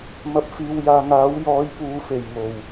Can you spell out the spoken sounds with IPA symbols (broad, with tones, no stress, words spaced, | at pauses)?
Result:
mɐ˧p̚ fiː˧wjaː˧ ŋaː˨˥wjɔː˨˧j puː˧fe˨˩jŋo˨˩w